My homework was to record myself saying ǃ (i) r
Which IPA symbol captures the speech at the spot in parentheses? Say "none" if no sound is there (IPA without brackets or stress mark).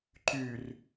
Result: y